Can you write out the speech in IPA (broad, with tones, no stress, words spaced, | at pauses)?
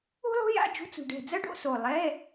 ṳ˥lˠṳ˥ja̰˧˥˧ d͡ʒṳ˧˥˧t͡sṳ˧˩ɖɛ̤˧˩d͡zɐ˥ ɖo̰˥so˧˩ lˠɛ˧˥˧